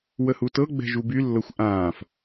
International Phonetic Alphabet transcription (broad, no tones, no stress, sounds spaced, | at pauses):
w ə h u t ɤ ɡ͡b ɛ̤ ʒ u b y lː ɤ xʷ ʔ ãː f